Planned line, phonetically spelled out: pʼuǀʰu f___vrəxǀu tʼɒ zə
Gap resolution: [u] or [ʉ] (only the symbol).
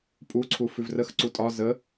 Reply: ʉ